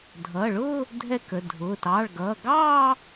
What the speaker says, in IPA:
dʱ ʌː˩˧˩ ɭ ʊː˥˧ | dʱ ɛ˥˧ k ə˩˧˩ dʱ ʊː˩˧˩ t ɑː˩˧˩ ɭ ɡ ʌː˩˧˩ ɡ ɑː˥˧

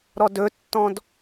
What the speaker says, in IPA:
ɾ ɔ d ɵ tː ɔ̃ d

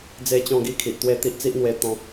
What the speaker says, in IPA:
d͡z e˥˧ t͡ɕ ɔ̃˥˧ ɡ i˦ kʰ i˨ ʔ t̪ w e˥˧ t̪ i˦ ʔ t͡s i˦ ʔ n̪ w e˧ t̪ ɔ̃˧

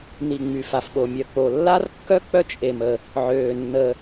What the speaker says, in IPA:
n i˩ ŋ͡m y˩ f a˩ f ɓ o˩ mʲ œ˩ k͡p o˩ lː a˥ r kː œ˥ k͡p œ˥ t͡ʃʼ e˩ m ə˩ | ʕ øː˩ nː ə˩

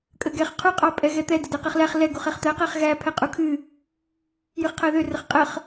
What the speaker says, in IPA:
kʼ ə ɡ ɛ χ qʰ u qʼ ɑ pʼ ɛ ɣ ɛ t̪ ɛ d ə d ɛ q ɛ χ l æ χ l ɛ ɡ u χ ɛ χ t̪ æ q æ χ ɣ æ pʰ ɛ qʼ u kʰ ɨ | j ɨ χ qʰ æ ð ø r ə χ qʼ ə χ

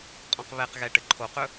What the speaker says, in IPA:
qʼ ɔ̃ q β ɛ q ɣ ɛ ʈ ɘ ǃʰ o q ɵ

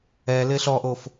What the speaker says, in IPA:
ɛ l ɪ ɬ ɔ ʔ o f

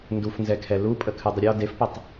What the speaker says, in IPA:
n d u f n z ɛ kʰ ɛ l u pʼ ə kʰ ɨ dˤ ə ɾʲ ɔ d e f p ə tˤ

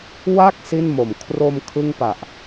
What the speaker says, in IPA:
w a˥˩ k̚ s i˥˩ n m o˨˩ m kʰ r o˧ m kʰ ɯ˥˩ ŋ p a˨˩ ʔ

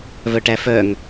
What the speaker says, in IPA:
v œ ʈ æ f œ ŋ

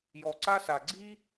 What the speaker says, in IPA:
j ɔ˧ ǀ a˥ s a˧ ɡ͡ǀ i˥

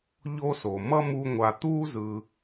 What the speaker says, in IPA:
ʎ o˥ s o˩ m ʌ˥ m u˦ ŋʷ a˨ t̪ uː˥ z ɯ˨

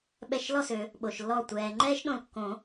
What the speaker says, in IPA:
ɓ ɛ˧˩ ʃ l ɔ˥˨ s ø˨˩˦ | ɓ o˩ ʃ lː ɔ˧˩ tʷ ɛː˩ ŋ͡ǃ ɛː˥ ʃ ɗ õ˧˩ l kː õ˨˩˦

